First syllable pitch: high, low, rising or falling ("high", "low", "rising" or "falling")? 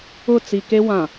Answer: falling